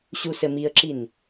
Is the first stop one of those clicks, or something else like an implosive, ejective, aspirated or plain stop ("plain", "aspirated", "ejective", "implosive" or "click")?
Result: click